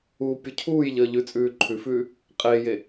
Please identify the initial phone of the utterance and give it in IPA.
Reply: uː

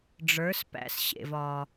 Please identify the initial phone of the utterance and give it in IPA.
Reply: ɖ͡ʐ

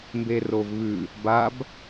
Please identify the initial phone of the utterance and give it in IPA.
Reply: m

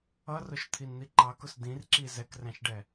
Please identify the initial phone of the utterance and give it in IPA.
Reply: ʌ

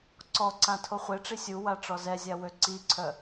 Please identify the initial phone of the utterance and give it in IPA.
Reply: ǀ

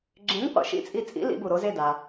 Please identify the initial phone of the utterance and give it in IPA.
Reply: ɡ͡ǁ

